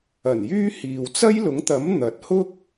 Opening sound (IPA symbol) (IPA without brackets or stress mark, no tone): ɐ